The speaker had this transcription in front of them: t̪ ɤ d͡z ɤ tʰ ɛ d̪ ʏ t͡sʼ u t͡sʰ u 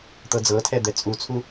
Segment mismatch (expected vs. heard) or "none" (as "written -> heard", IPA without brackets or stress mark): ʏ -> ɛ